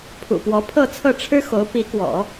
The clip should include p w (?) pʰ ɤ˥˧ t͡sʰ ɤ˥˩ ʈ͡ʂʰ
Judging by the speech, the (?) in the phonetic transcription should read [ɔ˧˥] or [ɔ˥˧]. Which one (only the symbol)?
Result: ɔ˧˥